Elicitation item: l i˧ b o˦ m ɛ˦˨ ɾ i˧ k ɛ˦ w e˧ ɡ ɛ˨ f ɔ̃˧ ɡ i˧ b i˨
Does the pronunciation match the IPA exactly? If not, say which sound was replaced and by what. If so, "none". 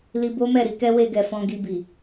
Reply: none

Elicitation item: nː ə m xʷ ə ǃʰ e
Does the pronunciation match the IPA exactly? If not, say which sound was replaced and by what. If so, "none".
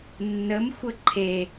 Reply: none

